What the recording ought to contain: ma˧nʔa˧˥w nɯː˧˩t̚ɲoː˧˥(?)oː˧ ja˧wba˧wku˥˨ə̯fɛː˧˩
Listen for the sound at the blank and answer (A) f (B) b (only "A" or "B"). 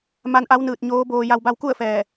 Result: B